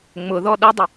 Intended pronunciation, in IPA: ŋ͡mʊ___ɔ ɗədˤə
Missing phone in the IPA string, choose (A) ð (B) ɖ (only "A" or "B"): A